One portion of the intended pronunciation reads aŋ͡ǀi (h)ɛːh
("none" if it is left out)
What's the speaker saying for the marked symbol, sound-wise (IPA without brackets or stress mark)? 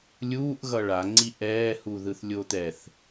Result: ʔ